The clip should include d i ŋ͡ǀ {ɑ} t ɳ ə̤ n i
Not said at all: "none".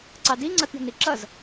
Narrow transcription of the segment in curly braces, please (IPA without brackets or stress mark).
ʌ